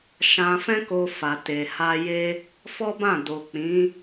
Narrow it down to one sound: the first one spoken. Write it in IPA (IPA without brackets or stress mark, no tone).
ʃ